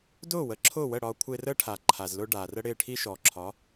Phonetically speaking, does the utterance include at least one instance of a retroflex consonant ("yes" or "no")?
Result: yes